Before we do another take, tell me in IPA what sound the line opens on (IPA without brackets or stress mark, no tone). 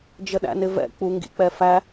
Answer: d͡ʒ